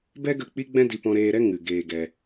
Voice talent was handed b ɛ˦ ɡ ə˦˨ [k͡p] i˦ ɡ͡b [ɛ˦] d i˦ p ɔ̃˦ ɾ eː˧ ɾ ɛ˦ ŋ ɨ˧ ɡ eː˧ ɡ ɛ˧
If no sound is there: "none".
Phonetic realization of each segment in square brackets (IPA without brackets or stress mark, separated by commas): k͡p, ɛ̃˦